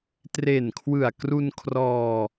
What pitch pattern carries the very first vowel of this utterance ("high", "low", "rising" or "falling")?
low